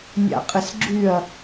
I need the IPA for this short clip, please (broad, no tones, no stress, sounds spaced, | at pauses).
nʲ a̰ qʼ ɪ s ɡ͡ǁ y ɐ̯